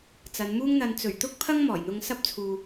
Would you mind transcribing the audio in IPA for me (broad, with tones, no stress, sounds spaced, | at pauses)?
t͡s ɐ˨˧ n m uː˥ ŋ n̪ ɐ˧ n t͡s ɵ˨˩ ɥ t̪ ʊ˥ k̚ pʰ ɐ˥ ŋ m ɔː˨˩ j n̪ ʊ˧ ŋ s ɐ˥ p̚ t͡sʰ uː˨